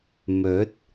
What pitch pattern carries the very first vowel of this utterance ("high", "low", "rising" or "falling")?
rising